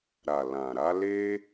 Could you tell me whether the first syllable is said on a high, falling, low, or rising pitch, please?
low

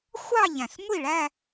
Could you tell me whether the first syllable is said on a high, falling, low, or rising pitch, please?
falling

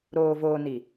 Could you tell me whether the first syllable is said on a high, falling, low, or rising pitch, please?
low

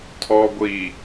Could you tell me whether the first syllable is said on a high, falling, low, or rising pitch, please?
low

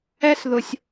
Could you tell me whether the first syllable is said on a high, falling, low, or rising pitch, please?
high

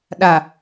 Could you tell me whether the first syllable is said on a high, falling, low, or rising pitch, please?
low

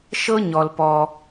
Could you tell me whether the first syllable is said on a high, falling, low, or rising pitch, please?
high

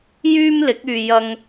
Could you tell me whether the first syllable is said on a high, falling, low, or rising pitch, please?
high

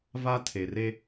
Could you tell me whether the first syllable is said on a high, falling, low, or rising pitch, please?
high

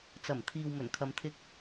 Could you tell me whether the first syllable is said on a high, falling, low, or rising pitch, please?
low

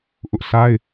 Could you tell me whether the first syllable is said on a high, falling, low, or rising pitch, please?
high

